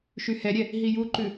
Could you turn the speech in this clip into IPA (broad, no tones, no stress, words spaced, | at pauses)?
ʃyhɛɾʲɛ | ɦijuǃʉ